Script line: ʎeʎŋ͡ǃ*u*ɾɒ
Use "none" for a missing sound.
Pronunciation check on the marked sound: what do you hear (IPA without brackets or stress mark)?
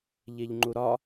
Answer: u